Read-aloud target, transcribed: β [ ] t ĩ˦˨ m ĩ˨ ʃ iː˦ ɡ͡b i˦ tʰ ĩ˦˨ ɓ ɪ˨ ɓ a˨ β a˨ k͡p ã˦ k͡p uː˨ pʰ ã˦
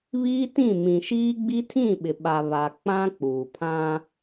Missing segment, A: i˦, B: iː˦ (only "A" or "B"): B